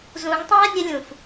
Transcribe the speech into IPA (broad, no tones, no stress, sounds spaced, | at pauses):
z ũ ŋ tˤ æ̃ ə̯ nʲ ə lʲ ũ f